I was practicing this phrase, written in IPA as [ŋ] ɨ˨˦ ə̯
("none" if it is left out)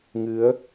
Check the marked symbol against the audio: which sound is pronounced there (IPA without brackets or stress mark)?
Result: ŋ